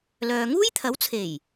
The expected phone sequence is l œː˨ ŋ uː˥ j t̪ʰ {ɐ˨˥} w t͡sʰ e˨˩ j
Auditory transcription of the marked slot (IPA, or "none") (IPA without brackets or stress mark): ɐ˨˥